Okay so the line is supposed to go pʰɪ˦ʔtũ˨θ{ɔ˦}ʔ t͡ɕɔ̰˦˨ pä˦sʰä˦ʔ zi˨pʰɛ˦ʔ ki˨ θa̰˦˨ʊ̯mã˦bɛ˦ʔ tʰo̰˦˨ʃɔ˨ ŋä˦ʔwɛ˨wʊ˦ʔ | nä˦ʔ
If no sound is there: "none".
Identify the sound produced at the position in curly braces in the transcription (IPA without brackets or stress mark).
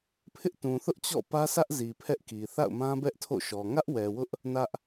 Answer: ʊ˦